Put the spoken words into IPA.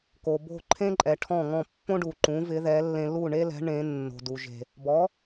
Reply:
ko˩bo̤˥˩ǃʰẽ˥ǃʼɛ˩ ʈʰɔ̃˥˩ŋɔ̃˥˩ pːõ˥ɖu˩ǃũ˩˥vɪ˩˥ ðɛ˩˥lːẽ˧ lu˥˩ɳe˥lɛ̤˩˥ ɳẽ˩˥ nːo̤˩du˩ʒe̤˩ | bɔ˩˥

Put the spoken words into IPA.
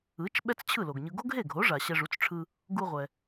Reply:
ɯ˩˥t͡ʃ ɓɛ˥t͡st͡ɕʰɯ˥˩lo˩ɡɲɯ˧ ɡo˥ɡɦe˥˩ɡʱo˩˥ʐa˩ ɕɛ˧ʐu˩˥t͡sʈ͡ʂʰɯ˧ | ɡu˧ʁʷɛ˩

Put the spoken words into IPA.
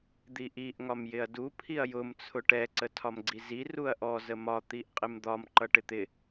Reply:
d̪iʔiʔ ŋɒmjɪɐ̯du pʰiɐ̯jʊm t͡sʰʊʈɛ ǀətʰɒmɡ͡ǀizi ruɐ̯ʔɔ zəmɒ t̪iʔqʼɪmd̪ɒm ǃʌʈɪt̪ɪ

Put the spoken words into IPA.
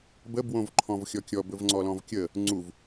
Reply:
bə bwõvǃʰɔ̃vxʲɔkʲɔ bɵvŋ͡ǀɔlɔ̃vkʲə | ŋ͡ǀuv

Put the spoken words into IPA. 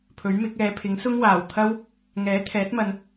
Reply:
pʰɵ˨˥ɥmɪ˨˥k̚ ɛː˨˧pʰɪ˨˥ŋ sʊ˥ŋwaː˨˩w t̪ʰɐ˥w | ŋɛː˨˥ t̪ʰɛː˨˥t̚mɐ˨n

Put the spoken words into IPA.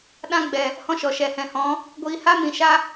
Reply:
ɗã˦ɡ͡bɛ˨ | hɔ̃˦ʃɔ˨ ʃɛ˨hɛ̃˨hɔ̃˨˦ | ɡʷiː˧ha˦ mĩ˨ʃa˧

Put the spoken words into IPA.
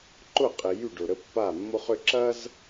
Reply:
ǃʊ˦˨qʼɪ˨ jy˦˨ɖʊ˨ɾə˦ pːa˦˨mːo˦χʏ˦ ǁɐ˦z

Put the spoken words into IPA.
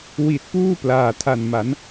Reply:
wi˨˩t̚puː˥˩ plaː˨˩tʰa˨˩nma˩˦n

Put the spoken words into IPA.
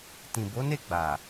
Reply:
tĩ˨bo˨˦ne˦˨ɡ͡ba˨

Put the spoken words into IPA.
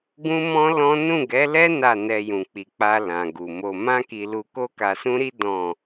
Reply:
ɡũ˦mɔ̃˦lɔ̃˦ nũ˦˨ɡɛ˨˦ lɛ˦ na˦˨nɛ˧ jũ˨k͡pi˨k͡pa˧ lã˨ɡu˨mo˧ mã˦ki˧lu˧ ko˦ka˧sũ˦ɾi˦ dɔ̃˦˨

